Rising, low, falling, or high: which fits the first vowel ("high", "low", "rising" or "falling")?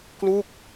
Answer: falling